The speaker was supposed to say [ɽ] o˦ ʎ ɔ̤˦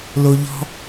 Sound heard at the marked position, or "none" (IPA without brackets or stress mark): l